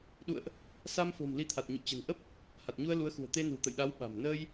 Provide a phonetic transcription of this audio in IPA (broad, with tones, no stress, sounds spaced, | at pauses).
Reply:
ɗ ṵ˧˨ ə̯ ʔ | s a˧ m f o̤˨˩ m l i˧ t̪ʰ a˨˩ t̚ ɲ ṵ˧˨ t͡ɕ ə̤˨˩ n ʔ ə˦˥ p̚ | h a˨˩ t̚ ɲ u˧ ə̯ l u˨˦ ə̯ x ṳ˨˩ ə̯ t̪ e˧ n ṳ˨˩ t̪ ə̰˧˨ j ɗ a˨˦ w ɓ a̤˨˩ m n əː˧ j